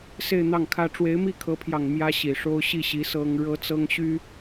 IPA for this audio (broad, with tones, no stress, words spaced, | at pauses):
se˥˧ɪ̯n̪ɑ˥˩ŋkʰä˥ ʈ͡ʂwe˧˥ɪ̯mi˥˩kʰɤ˧˥pʰjɑ˨˩ŋ mjä˥ɕi˨˩ʂo˥ʊ̯ ɕi˥˩ɕi˧˥ sɤ˥ŋ ɻɤ˥t͡sɤ˥ŋɕy˥